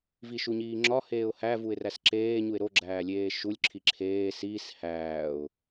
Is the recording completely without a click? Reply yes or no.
no